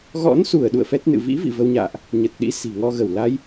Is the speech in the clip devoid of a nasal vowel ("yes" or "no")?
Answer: yes